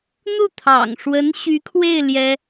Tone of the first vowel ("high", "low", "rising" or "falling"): falling